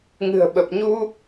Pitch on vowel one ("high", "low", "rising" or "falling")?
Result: low